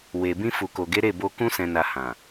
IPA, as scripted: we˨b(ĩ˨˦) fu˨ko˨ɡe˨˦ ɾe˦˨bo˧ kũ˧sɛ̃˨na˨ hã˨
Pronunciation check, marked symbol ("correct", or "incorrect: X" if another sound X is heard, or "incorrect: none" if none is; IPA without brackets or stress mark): incorrect: ĩ˧